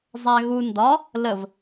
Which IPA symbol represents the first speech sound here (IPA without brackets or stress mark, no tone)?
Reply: zˤ